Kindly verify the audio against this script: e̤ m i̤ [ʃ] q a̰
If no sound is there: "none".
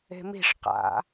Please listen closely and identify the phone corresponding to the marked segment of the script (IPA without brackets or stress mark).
ʂ